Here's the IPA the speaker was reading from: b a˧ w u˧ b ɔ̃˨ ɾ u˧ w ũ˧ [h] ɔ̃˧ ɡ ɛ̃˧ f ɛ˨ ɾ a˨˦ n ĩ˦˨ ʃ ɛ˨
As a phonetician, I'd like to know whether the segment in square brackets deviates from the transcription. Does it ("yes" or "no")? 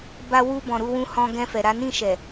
no